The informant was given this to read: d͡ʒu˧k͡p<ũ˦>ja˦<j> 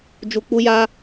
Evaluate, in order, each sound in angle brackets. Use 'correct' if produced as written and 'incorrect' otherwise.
incorrect: u˦, incorrect: none

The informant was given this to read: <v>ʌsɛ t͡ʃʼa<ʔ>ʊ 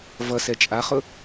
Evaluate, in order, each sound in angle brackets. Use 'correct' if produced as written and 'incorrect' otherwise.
correct, incorrect: χ

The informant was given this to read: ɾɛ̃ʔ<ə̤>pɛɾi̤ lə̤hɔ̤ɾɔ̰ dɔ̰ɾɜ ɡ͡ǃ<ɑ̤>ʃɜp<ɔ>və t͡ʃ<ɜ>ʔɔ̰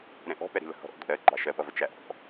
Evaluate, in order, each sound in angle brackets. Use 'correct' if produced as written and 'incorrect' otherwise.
incorrect: ɔ̤, incorrect: ɑ, incorrect: ʌ, incorrect: æ

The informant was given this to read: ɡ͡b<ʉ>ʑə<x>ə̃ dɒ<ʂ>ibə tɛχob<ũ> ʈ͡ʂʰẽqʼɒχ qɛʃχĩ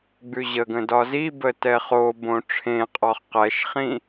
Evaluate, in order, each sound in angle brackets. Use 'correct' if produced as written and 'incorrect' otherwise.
correct, incorrect: ɡ, incorrect: z, incorrect: õ

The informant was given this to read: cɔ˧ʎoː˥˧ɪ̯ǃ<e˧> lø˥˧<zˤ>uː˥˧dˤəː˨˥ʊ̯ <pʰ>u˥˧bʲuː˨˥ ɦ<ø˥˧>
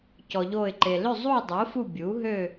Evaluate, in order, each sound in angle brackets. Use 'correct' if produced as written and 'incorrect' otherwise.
correct, correct, incorrect: f, correct

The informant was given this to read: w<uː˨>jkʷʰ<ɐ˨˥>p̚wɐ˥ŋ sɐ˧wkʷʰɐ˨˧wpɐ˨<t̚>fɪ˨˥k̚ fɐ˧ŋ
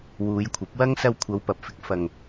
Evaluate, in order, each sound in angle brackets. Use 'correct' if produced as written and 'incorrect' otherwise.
incorrect: uː˨˧, correct, incorrect: p̚

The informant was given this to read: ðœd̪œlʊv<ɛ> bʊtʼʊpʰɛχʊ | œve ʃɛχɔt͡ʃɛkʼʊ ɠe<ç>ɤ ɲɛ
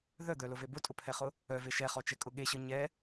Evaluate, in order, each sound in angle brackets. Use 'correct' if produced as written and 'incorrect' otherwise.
incorrect: e, incorrect: ɕ

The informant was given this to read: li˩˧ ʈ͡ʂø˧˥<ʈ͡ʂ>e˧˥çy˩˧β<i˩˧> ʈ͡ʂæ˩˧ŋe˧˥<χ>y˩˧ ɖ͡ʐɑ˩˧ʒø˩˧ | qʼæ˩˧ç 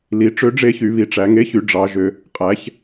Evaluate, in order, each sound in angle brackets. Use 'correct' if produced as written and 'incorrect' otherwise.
incorrect: ɖ͡ʐ, correct, incorrect: ç

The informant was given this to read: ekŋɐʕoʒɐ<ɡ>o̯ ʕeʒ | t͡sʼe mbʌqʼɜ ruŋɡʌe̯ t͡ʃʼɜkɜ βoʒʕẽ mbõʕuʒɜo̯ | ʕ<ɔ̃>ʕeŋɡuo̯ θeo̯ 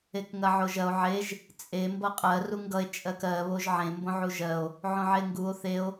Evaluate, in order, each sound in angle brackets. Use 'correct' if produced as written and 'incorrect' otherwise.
incorrect: none, incorrect: õ

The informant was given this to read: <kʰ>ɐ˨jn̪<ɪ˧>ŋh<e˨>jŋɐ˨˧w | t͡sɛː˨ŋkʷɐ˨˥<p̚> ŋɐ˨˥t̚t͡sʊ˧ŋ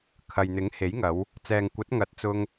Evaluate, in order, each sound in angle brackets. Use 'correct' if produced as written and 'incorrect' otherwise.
correct, incorrect: ɪ˨˥, incorrect: e˨˥, incorrect: t̚

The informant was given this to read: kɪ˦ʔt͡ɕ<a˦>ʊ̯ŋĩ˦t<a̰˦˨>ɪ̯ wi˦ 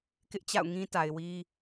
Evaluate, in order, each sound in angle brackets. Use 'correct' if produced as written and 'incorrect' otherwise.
incorrect: a̰˦˨, incorrect: a˨

